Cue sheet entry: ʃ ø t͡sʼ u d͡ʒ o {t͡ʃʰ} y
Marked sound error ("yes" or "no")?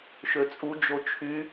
no